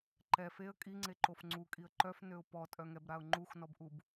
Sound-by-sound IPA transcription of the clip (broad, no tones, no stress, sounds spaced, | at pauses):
ǃ ɛ f e ə̯ kʼ i ŋ͡ǀ e ǃ o f ŋ͡ǀ u kʼ i ə̯ ǃ œ f n ø ʊ̯ p ɔ tʼ œ ŋ ɛ b ɾ a ʊ̯ ŋ͡ǃ u x n ɔ b ʔ u b